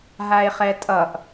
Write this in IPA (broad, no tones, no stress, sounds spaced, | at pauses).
ɦ a e̯ χ ɛ tʼ ʌ ʔ